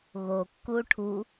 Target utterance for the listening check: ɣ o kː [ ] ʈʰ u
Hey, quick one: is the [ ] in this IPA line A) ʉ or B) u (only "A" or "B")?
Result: B